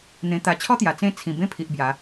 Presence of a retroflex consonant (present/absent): absent